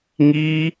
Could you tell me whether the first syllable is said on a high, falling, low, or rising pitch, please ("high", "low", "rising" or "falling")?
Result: high